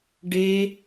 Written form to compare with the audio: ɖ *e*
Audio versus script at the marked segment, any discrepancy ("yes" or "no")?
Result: no